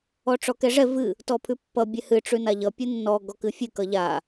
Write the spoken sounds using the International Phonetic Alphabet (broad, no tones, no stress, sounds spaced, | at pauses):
ɔ ʈ͡ʂ ɔ k ɛ ʐ ɛ v ɨ | t ɔ pʰ ʉ pː ʌ bʲ ɛ h ɨ ʈ͡ʂ ʉ n a ʎ ʌ pʲ ɨ nː ɔ ɡ ɔ k ɨ fʲ ɨ k ʌ ʎ a